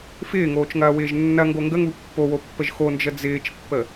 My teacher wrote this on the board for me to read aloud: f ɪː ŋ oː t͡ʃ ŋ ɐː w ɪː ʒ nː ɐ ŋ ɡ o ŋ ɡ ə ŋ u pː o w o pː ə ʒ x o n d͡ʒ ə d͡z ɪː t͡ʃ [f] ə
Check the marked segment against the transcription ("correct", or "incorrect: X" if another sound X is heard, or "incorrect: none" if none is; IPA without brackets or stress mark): incorrect: pː